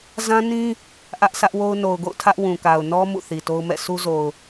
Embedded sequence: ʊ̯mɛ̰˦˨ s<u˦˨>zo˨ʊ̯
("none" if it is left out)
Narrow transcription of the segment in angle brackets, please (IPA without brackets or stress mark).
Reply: u˦